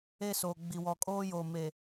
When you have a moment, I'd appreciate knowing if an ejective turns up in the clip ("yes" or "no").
yes